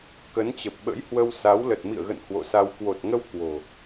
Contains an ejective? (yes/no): no